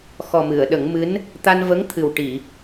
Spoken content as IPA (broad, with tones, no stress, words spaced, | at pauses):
xɔ˨˩mɨ˨˩˨ə̯ ɗə˨˩˦ŋmɨ˧˥n | t̪a˧nvə˧˥ŋ t̪ʰɨ˨˩wʈi˨˩˨